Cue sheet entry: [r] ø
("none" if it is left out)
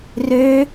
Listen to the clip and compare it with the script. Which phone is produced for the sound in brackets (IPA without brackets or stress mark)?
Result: r